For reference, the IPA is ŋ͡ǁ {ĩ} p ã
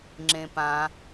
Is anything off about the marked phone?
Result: yes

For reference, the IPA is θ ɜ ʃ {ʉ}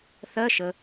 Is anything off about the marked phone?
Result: yes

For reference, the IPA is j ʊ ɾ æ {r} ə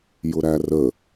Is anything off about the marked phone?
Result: no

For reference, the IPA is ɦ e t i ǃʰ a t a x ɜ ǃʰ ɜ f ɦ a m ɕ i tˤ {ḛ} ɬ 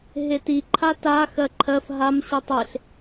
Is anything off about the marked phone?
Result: yes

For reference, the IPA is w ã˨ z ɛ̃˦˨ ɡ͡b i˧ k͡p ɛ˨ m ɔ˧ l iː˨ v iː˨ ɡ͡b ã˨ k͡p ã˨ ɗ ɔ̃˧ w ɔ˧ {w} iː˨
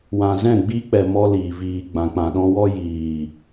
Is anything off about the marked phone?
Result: yes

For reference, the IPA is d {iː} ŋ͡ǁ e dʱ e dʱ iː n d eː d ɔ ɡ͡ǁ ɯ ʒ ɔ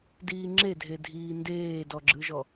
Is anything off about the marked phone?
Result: no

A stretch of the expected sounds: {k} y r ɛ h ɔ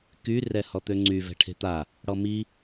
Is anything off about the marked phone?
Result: no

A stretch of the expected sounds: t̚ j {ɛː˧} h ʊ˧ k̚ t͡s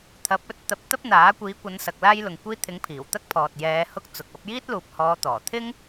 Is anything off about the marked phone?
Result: yes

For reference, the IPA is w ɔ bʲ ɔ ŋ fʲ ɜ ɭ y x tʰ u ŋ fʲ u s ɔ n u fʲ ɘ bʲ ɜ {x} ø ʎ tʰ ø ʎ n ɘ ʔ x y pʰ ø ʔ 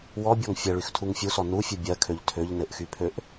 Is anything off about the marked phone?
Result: yes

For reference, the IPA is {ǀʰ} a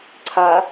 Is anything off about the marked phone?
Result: no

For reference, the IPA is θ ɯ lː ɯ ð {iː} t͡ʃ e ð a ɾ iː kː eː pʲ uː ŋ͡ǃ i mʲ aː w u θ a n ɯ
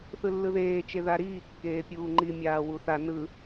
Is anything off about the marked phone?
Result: yes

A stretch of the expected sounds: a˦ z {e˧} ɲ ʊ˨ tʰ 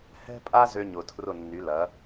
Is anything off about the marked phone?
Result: yes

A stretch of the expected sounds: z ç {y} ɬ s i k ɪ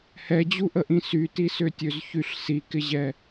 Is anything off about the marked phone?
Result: no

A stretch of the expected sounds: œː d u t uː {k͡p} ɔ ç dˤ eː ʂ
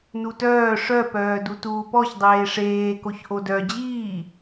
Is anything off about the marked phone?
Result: yes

